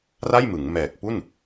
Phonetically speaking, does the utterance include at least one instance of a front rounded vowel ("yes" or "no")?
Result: no